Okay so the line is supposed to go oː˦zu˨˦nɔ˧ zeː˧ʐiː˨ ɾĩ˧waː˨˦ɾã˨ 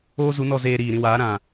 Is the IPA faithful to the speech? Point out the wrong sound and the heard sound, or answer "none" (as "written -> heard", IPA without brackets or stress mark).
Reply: ʐ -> ɾ